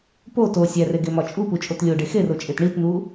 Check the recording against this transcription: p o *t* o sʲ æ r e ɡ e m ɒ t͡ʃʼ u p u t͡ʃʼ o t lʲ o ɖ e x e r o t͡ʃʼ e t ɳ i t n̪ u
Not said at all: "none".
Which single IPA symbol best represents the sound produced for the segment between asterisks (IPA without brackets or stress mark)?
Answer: t